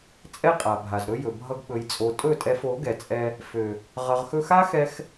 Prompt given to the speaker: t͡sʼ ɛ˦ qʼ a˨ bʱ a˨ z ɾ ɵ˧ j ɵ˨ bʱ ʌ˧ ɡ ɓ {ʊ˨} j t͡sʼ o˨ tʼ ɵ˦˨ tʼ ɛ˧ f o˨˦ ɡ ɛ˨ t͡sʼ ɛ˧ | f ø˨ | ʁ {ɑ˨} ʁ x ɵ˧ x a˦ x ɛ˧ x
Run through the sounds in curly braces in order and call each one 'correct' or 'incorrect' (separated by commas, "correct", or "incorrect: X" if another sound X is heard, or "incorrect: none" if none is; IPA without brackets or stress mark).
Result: incorrect: ɵ˨, incorrect: ʌ˨